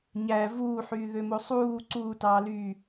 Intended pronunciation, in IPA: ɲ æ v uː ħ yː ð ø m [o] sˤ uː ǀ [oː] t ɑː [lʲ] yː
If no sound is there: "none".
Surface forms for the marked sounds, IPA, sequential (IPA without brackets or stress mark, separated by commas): o, uː, l